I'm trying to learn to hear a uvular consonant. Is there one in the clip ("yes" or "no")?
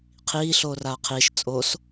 yes